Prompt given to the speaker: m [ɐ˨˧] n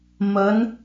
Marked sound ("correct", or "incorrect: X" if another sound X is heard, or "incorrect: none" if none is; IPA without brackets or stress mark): correct